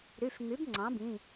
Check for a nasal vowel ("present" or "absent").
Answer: present